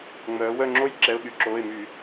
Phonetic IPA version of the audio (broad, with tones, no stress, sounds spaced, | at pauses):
ŋ͡m œː˩˧ w œ˦˨ ŋ͡ǁ o˥ j ǁ ɛ˩˧˩ ʊ̯ ɠ y˧˩˧ ǁ oː˩˧˩ ɪ̯ m y˧˩˧